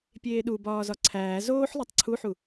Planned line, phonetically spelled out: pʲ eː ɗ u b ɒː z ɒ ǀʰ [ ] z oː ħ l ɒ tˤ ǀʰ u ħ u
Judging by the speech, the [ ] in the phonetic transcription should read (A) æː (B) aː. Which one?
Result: A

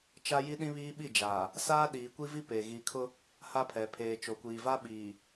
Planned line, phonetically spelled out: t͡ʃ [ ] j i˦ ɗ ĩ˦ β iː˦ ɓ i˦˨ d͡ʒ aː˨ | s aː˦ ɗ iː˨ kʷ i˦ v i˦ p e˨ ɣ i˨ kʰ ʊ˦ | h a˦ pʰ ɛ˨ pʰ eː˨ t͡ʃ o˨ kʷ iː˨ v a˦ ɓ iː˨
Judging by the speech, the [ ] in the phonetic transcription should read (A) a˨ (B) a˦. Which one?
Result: B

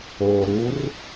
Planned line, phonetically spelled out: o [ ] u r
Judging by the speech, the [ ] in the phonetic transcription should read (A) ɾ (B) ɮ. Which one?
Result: A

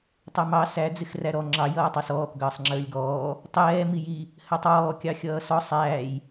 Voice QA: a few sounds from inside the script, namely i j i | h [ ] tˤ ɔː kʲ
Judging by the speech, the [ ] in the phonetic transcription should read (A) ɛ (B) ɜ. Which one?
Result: B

